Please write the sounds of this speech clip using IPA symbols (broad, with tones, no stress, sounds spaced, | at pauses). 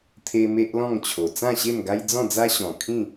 t̪ʰ e˧ m e˦ ʔ l ɔ̃˥˧ ŋ t͡ɕʰ o˨˩ t͡s ã˥˧ ɕ e˥˧ m ɡ a˦ j d͡z ɔ̃˥˧ d͡z a˦ ɕ ɔ̃˨˩ kʰ ĩ˥˧